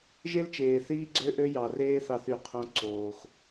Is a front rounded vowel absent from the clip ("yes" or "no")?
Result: no